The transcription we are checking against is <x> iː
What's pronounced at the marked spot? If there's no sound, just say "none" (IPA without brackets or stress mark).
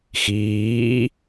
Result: x